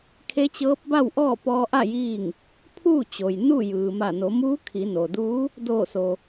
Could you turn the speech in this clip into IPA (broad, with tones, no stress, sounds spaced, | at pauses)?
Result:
kʰ e˧˥ t͡ɕ ɤː˧˥ p̚ b a˥˨ w ʔ ɔː˥˨ p ɔː˧ ʔ a˥˨ j iː˥˨ ŋ | pʰ uː˥˨ t͡ɕ o˩ j n u˥˨ j ɯː˩ m a˧˩ n o˩˧ m uː˧˥ kʰ i˩˧ n o˩ d uː˧˥ | d oː˧˩ s o˩